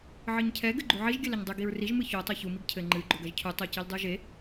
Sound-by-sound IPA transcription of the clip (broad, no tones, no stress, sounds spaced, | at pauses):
ʕ ɨ ɲ cʰ ɛ ɡ ɘ ɡ͡ǃ u ʕ i ʒ ɡʲ ɘ l ɐ ɲ dˤ ɨ ɡ i ɹ r i ʒ m ɨ ç o tˤ o ç u m i ɡ cʰ ɘ ŋ͡ǃ ɨ ɡ͡ǃ o ɡ ɐ ʒ cʰ u tˤ u c i l dˤ u ʒ e